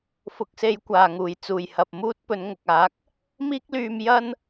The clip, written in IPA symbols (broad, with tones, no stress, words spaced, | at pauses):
fʊ˨k̚se˨˧jkʷaː˨˩ ŋuː˨˩j t͡suː˨˩jhɐ˨p̚muː˥t̚ pɵ˨˧nŋʊ˨k̚aː˨˥k̚ | miː˥k̚lyː˧m jɐ˥n